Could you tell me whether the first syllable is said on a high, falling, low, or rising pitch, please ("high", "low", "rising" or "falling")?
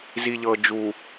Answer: low